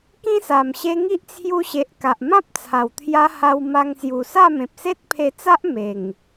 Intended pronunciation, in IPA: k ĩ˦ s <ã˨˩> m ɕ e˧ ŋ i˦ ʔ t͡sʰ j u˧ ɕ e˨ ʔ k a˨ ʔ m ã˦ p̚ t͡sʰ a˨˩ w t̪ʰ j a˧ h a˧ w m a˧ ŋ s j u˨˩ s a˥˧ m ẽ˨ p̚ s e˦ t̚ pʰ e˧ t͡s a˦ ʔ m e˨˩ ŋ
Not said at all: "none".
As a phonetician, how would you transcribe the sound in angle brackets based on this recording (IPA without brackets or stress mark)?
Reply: a˨˩